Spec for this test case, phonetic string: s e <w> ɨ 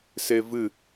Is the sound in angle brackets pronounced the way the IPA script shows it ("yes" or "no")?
no